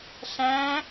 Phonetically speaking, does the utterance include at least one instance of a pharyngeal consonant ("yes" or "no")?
no